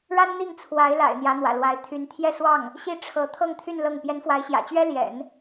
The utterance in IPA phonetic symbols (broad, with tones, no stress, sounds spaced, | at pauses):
ɻ a˥ n n̪ i˥˩ ŋ t͡sʰ w a˧˥ ɪ̯ l a̰˨˩ ɪ̯ n̪ j ä˧˥ n̪ w ä̰˨˩ l w a˧˥ ɪ̯ t̪ʰ y˧˥ n t̪ʰ j ɛ˥˧ s w ɑ˥˩ ŋ | ɕ i˥˩ ʈ͡ʂʰ ɤ˧˥ t̪ʰ ɤ˥˧ ŋ t̪ʰ y˥˧ n l ɤ˥˩ ŋ p j ɛ˧˥ n f w a˧˥ ɪ̯ ɕ j ä̰˨˩ t͡ɕ ɥ ɛ˥ l j ɛ̰˨˩˦ n